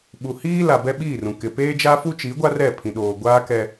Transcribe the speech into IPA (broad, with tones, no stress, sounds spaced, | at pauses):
ɓ u˨ h iː˦ l a˨ b ɛ˦ ɓ iː˦˨ r ũ˨ k ɪ˨ p eː˦ d͡ʒ a˦ f u˦ t͡ʃ i˨˦ ɡʷ a˦ r ɛ˦˨ pʰ ĩ˨ ɗ oː˨ ɡʷ aː˦ k ɛ˦